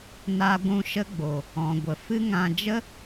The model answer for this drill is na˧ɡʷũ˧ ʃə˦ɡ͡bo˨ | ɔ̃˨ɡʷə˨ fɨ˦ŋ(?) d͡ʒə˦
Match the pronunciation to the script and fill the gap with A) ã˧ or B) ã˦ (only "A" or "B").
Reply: A